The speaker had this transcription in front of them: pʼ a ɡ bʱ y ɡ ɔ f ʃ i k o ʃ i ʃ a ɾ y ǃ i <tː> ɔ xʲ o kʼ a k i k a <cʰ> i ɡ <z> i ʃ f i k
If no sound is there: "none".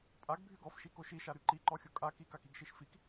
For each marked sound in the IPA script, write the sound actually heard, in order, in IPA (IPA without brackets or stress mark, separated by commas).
ǃ, k, ʃ